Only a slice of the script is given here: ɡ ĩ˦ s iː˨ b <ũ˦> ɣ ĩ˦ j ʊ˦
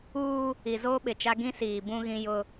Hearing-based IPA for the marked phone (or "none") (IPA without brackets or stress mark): ũ˦